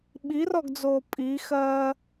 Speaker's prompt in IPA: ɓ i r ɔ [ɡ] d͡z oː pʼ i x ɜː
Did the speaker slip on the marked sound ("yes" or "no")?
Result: no